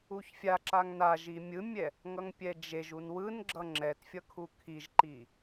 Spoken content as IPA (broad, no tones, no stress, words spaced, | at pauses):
uçfʲaǁaŋ naʒi mʲɯmʲɛ | ŋʌŋpʲɛd͡ʒeʒun wɯnɡ͡ǁʌ ŋ͡ǁɛtfʲʌ kʰukʰiʒǃi